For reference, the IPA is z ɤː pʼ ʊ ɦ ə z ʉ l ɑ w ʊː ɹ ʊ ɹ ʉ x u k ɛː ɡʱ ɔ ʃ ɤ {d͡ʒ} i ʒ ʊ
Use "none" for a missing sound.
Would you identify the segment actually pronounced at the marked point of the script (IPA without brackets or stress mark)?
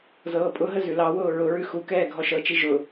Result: t͡ʃ